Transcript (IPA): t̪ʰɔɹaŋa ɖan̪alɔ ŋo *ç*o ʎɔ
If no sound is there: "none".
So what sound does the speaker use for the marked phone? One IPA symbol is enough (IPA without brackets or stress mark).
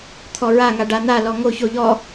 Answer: ç